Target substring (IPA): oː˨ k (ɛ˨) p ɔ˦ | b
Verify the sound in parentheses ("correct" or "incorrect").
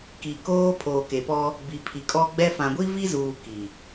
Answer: incorrect